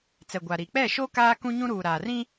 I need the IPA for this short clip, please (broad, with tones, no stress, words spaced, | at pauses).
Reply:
t͡sɛ˨ɡʷa˨ɾi˨ k͡pɛ˦˨ʃo˦ kaː˦kũ˦ɲũ˦ɾuː˨ ɾaː˨rĩ˦